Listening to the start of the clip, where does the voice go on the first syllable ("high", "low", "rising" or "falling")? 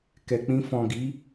low